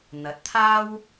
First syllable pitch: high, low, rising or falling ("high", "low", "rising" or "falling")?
rising